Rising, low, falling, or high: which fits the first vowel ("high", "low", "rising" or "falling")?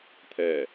low